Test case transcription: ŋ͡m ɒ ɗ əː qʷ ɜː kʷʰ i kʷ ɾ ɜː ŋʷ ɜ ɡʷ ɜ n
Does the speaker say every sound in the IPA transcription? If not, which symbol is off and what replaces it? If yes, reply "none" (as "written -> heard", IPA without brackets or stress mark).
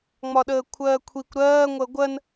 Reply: qʷ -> kʷʰ